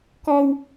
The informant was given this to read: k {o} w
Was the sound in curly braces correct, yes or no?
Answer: no